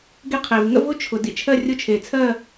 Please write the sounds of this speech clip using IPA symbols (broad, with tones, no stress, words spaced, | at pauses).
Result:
ɡe˥qʰe˩v ŋə̰˥vʊ˥ t͡ʃʰʊ˩ dḭ˥˨t͡ʃʰɜ˥˨rʲʊ˥˨ t͡ʃʰe˩t͡sʰɜ˥˨